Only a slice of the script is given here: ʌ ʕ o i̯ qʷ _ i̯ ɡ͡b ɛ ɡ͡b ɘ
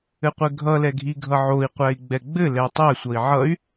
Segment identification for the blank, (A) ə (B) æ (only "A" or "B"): B